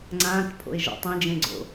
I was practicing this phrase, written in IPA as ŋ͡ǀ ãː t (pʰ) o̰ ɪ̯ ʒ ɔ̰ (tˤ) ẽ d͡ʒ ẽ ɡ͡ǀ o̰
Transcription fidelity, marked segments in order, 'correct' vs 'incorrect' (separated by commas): correct, correct